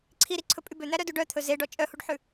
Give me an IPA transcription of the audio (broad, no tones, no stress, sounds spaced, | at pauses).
ǀʰ i ɾ i ǀʰ ɵ pʼ y b ø n̪ æ ɾ œ d u ɖ œ t̪ʰ ɵ z e ɖ ɔ t͡ʃʼ œ h u ɖ ħ ʉ